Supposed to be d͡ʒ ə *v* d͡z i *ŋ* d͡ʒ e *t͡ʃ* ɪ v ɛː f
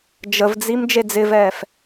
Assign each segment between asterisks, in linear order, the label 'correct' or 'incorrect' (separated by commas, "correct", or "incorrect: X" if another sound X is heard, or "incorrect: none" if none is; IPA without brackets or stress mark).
correct, incorrect: m, incorrect: d͡z